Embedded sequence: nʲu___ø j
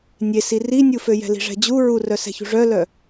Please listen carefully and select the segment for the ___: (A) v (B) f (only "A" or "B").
B